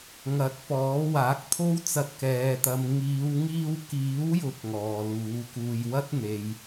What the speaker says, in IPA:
ŋ ɐ˨˥ t̚ p ɔː˨˥ w aː˨˥ k̚ t̪ʰ o˥ w t͡s ɐ˧ t̚ k ɛː˨˧ t̪ ɐ˨˧ m ŋ iː˨˧ w ŋ iː˧ w k iː˨˥ w j ʊ˨˥ k̚ ŋ ɔː˨ l uː˨˥ k uː˧ j w ɐ˥ t̚ n̪ e˨ j

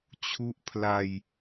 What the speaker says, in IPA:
t͡ɕʰ u˥˩ ʔ pʰ l a˧ j

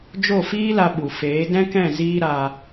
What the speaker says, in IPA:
d͡ʒ o˦˨ f iː˦ l a˧ ɓ u˨ f eː˨˦ d ɛ̃˦ k ɛ̃˦˨ z iː˦ ɾ a˧

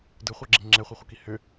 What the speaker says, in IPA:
d ɯ χʷ ə˞ ɡ͡ǁ i ŋ͡ǁ ɛ χʷ ɘ χʷ ə k i h ʏ

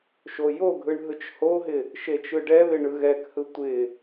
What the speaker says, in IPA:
ʃ o j o ɡʱ ɯ ɳ ɦ ɯ t͡ʃ h o ɦ ɪ | ʃ e t͡ʃ ɯ ɖ ɛ β ɪ ɳ ɯ ɣ ɛ k h ɯ tʷ ɪ

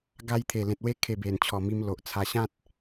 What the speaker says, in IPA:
ɡ a˧ j t̪ʰ e˨˩ l ẽ˨ t̚ w e˦ kʰ e˨˩ b e˨˩ n t͡ɕʰ ɔ˨˩ m i˧ m l o˨ ʔ t͡sʰ a˧ ɕ ã˦ t̚

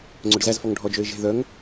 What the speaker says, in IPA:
ŋ͡ǀ ɵ ɖ z æ z f ɔ ŋ ɖʱ ɔ d͡ʒ ø ɪ̯ ʒ e̤ ð œ ŋ

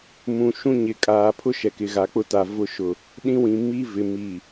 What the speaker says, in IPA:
m ũ˨ ʃ ũ˦ ɲ ɪ˨ kʼ aː˨ pʰ ʊ˦ ʃ ɛ˨ k ɪ˨ ɣ a˨ k͡p ʊ˦ t a˨ v ʊ˦ ʃ ʊ˦ | ɗ ĩ˦ w ĩ˨ m i˦ v ɪ˨ m i˨

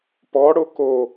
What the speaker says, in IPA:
p ɔ ɽ o k o

